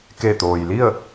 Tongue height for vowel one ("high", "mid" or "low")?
mid